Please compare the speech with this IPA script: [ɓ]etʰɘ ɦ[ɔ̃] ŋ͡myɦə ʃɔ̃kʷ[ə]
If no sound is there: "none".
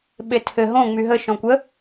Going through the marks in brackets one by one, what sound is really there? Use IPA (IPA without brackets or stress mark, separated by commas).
ɓ, õ, ə